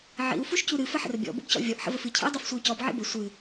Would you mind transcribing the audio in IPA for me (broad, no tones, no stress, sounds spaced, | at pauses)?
ʕ ḭ u̯ f u ʃ c u ɾ ɨ f ə ħ ə̰ r bʲ ɔ̰ b o̰ b c ɔ̰ vʲ ɔ ʔ ħ ə̰ v ə f ɨ cʰ ḭ u̯ dˤ o f sʷ e y̯ c ɔ b ʕ ḭ b ə sʷ ɨ